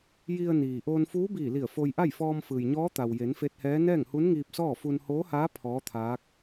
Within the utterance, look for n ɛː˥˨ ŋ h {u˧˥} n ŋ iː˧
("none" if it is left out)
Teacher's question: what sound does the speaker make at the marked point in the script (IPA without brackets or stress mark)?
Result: u˧˥